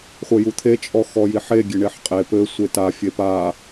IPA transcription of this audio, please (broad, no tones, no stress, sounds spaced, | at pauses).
χʷ ɘ j u t̪ʰ e t͡ʃʼ ɔ x ɔ j i ħ e ɡʲ e ɳ e ħ qʼ e p ɘ sʷ e t a fʲ e p a